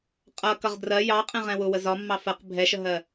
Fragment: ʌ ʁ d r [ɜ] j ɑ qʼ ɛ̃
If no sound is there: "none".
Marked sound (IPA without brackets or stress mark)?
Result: ɜ